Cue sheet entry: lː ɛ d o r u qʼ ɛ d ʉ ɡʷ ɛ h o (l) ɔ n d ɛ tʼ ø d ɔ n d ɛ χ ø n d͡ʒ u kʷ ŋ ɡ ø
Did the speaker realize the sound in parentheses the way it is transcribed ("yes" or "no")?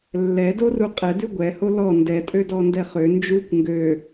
yes